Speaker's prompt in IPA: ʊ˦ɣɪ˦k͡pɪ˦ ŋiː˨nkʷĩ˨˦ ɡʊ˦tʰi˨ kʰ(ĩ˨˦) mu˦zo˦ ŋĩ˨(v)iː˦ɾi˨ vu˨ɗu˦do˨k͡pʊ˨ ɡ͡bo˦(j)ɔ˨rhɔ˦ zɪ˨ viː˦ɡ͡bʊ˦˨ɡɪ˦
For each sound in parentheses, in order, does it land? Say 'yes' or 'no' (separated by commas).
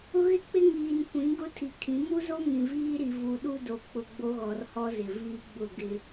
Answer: yes, yes, no